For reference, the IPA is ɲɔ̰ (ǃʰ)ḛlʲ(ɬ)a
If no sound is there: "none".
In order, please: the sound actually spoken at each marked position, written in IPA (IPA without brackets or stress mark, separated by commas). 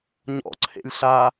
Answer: ǀʰ, ɬ